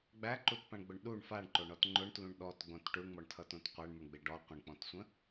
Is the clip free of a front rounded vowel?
yes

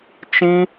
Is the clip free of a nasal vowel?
no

